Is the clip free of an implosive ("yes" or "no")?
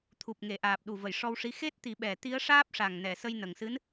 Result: no